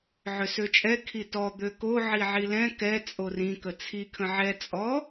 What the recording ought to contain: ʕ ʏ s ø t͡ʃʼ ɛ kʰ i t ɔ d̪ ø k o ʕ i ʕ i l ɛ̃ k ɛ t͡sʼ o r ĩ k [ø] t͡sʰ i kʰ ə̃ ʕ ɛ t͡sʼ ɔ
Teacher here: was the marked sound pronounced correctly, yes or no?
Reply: no